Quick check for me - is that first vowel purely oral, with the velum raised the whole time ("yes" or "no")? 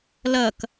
yes